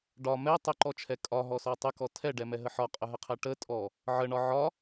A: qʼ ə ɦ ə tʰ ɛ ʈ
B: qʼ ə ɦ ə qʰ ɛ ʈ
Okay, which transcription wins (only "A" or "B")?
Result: B